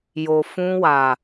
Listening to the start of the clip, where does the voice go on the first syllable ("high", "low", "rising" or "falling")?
low